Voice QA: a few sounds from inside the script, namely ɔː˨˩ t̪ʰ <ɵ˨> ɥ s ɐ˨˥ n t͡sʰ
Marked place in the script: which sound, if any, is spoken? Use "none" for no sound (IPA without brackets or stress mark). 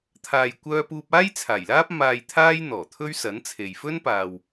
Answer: ɵ˥